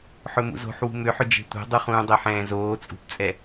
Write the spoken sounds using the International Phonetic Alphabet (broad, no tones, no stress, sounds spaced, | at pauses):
ħ ɵ m ṵ z o̤ ħ w ṳ m ʏ ħ ʏ d͡ʒ e̤ tʷ ɛ̤ dˤ u χ ũː dˤ ɛ ħ ɛ̃ː z oː t͡sʼ ṳ p t͡sʼ ɛ